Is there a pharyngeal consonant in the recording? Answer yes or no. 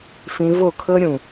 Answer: no